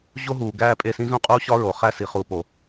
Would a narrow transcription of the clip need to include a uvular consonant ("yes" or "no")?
yes